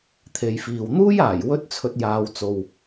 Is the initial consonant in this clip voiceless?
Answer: yes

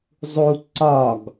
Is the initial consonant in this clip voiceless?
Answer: no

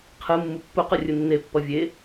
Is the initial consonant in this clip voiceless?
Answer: yes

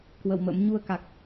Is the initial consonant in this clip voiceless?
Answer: yes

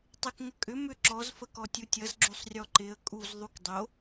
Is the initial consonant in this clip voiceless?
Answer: yes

